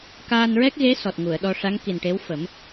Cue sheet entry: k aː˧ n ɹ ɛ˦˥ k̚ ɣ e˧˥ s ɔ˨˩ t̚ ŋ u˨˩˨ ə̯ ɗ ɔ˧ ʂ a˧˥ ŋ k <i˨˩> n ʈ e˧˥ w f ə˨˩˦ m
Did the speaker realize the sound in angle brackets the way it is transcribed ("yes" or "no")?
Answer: yes